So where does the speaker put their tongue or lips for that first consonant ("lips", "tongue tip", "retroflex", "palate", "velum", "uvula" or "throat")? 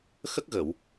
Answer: velum